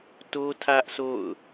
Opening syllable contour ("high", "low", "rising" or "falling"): high